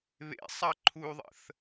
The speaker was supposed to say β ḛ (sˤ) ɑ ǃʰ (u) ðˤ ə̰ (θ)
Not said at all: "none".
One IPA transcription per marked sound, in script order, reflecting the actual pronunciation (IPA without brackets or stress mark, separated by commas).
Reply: sˤ, u, θ